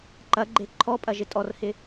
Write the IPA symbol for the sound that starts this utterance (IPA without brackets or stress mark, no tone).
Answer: ǃ